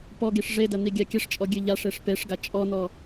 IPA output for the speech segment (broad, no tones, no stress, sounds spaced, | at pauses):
p ɔ ɡ i ʂ ʐ e d ɐ n̪ i ɡʲ a kʲ ɐ ʂ t͡ʃʼ ɔ ɡʲ ɨ ʎ a ʂ e ʂ p e ʂ ɡ a t͡ʃʼ ɔ n̪ ɔ